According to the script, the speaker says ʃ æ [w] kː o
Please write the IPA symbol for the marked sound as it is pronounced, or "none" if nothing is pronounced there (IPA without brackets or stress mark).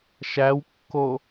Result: w